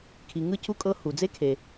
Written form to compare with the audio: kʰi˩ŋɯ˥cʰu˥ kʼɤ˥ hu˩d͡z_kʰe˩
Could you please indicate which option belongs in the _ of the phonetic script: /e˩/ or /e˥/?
e˥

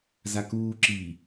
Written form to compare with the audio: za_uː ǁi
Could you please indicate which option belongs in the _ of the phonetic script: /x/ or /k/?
k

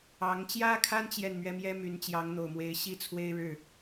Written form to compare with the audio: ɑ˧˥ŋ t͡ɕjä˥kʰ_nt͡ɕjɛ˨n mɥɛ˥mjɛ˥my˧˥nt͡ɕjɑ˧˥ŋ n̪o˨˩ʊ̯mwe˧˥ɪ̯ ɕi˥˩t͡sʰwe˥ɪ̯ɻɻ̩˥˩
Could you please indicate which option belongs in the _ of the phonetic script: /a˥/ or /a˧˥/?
a˥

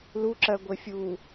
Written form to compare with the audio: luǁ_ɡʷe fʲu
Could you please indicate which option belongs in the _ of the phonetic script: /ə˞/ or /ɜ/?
ɜ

